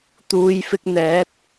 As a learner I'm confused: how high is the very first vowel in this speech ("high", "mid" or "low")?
high